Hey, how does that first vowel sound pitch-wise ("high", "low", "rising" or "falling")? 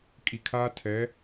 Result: low